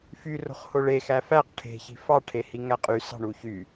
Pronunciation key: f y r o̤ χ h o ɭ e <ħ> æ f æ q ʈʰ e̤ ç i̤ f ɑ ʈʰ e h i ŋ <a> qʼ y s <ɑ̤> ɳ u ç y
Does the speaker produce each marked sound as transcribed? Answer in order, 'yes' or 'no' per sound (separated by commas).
no, no, yes